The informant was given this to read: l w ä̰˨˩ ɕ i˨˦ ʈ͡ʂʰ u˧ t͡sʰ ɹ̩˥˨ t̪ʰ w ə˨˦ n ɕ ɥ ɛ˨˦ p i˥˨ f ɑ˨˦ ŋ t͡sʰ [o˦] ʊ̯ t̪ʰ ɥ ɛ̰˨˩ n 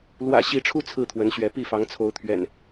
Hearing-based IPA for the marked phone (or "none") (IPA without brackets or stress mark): o˨˦